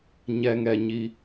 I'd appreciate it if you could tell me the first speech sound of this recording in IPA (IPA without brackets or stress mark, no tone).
ɲ